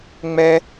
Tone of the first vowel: high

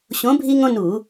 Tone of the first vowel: rising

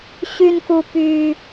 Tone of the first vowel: high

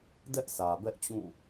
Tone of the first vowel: high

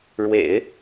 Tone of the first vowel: low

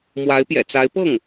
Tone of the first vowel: rising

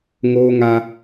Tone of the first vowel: high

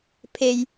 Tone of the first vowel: low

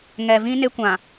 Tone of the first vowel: low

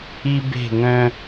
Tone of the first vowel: high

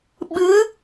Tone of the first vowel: rising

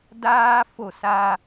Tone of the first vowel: high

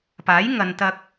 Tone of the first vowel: rising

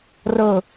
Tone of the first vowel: falling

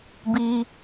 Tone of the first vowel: high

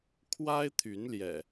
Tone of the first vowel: high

